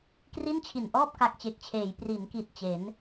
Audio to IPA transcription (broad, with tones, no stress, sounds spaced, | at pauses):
k r i˥˩ n t͡ɕʰ i˨˩ n ʔ ɔː˥˩ p̚ k a˦˥ k̚ t͡ɕ e˨˩ k̚ t͡ɕʰ eː˩˦ j p r i˩˦ n k i˨˩ t̚ t͡ɕ e˩˦ n